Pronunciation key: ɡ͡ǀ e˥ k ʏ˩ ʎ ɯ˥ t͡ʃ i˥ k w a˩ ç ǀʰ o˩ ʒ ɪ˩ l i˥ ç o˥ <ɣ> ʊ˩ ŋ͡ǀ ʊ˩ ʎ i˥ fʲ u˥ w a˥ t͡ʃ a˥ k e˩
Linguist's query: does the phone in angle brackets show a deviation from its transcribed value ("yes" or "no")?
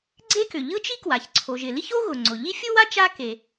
no